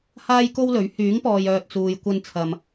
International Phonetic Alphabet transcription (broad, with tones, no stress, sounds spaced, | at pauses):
h aː˥ j k o˥ w l ɵ˨˥ ɥ h yː˨˥ ŋ p ɔː˨ j œː˧ t̚ t͡s uː˨ j kʷ ɐ˧ n t͡sʰ ɐ˨ m